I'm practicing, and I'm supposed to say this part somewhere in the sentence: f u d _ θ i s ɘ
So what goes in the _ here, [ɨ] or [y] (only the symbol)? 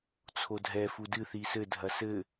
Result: ɨ